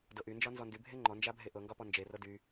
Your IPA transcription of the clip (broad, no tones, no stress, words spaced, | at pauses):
dɤʔynd͡ʒɒ nzɔndy bʱeŋ͡ǃɔ nd͡ʒabʱeʔɤŋɡɒ pɔnd͡ʒerɤ dy